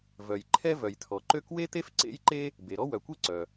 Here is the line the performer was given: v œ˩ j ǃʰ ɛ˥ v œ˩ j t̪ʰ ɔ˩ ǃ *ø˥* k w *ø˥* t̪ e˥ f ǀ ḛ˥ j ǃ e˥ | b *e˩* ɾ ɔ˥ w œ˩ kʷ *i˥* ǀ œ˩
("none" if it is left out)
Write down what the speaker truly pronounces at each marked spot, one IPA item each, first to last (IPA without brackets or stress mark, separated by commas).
ø˥, e˥, e˩, e˥